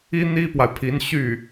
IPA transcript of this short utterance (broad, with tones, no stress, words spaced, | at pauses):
i˥n̪i˥pwa˨ɪ̯pʰi˧˥n ɕy˥˩